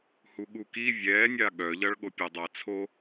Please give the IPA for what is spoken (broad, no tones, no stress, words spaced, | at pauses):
huɠuki vʲɛːnʲa ɠœʎʌɭɠo pʲadˤat͡sʰo